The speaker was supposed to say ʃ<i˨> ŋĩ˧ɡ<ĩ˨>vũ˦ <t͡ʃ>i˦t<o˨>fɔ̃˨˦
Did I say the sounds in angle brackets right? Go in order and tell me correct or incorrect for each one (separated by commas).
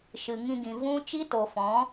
incorrect, correct, correct, correct